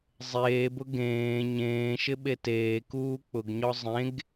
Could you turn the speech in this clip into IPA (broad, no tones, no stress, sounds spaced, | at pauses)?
zˤ eː b ʊ ɡ ẽː ɲ ẽː ʃ ɪ ɓ e t eː k uː k͡p ʊ ɡ ɲ ɔ zˤ ẽ ɡ